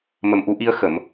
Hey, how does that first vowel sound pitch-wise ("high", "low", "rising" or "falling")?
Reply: low